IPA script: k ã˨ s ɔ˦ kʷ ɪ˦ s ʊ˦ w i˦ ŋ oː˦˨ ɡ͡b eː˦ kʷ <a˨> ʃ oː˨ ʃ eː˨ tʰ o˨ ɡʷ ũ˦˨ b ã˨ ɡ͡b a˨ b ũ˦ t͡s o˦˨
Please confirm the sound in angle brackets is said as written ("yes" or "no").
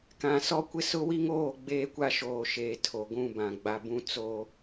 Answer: no